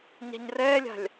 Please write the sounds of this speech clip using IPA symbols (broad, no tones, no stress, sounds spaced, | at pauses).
ɲ a̤ ɲ r ɛː lʲ a̤ lʲ